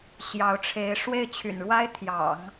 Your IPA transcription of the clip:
ɕjɑ˧˥ʊ̯ʈ͡ʂʰe˧˥ɪ̯ ʂwe˥˩ɪ̯t͡ɕʰy̰˨˩nɻwa˥ɪ̯t̪ʰjɑ̰˨˩˦ŋ

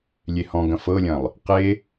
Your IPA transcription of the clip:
lʲehɔ̃ɡɐ̃ fɤlʲɐ̃lˠ | qe

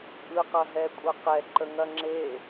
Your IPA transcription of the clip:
ʔɯ qɐɦɛkʷʼɐqɛ ǃəŋɐŋ͡ǁe

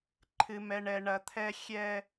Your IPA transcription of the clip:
ǃʰɨ˨ mɛ˨ɳɛ˨ ɳɐ˨t̪ʰɛ˦ xʲɛ˦

